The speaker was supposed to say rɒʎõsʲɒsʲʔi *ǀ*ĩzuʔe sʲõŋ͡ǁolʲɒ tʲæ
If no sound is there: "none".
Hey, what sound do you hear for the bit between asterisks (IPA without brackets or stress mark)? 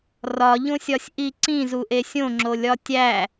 ǀ